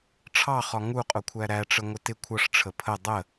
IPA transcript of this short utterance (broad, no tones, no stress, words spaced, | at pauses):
ʈ͡ʂʰɑχɒ ŋuqʼʊkʷʰæ ɾæʈ͡ʂəŋʷɪ tɪ kʷʰʌʂʈ͡ʂʰə pʰə dˤə